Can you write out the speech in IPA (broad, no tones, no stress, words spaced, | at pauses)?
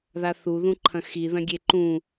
ðaθuðũǃʰɐ̃ xiðɐ̃ ɡʲeǃũ